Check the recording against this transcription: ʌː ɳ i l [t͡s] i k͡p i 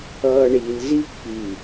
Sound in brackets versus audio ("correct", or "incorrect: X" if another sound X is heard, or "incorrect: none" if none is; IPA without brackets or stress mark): incorrect: z